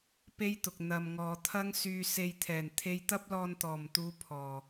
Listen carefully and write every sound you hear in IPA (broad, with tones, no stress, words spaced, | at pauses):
pe˥jt̪ʊ˨k̚ n̪ɐ˨m ŋɔː˨t̪ʰɐ˥ŋ syː˧se˧jt̪ʰɛː˨˩n t̪ʰe˧jt̪ɐ˥p̚lɔː˧n t̪ɔː˨˩mt̪uː˨˧ pʰɔː˨˩